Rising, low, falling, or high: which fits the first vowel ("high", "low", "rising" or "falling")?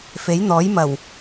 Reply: rising